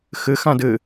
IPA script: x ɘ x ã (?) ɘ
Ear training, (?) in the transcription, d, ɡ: d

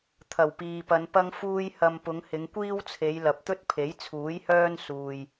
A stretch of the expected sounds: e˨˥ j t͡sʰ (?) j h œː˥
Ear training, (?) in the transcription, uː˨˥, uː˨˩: uː˨˥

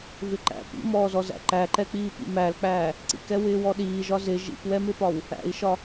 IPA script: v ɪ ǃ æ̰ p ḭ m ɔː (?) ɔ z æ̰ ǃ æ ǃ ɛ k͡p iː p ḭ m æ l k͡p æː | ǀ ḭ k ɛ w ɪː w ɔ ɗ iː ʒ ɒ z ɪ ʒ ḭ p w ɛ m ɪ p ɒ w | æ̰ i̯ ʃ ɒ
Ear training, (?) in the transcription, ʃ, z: z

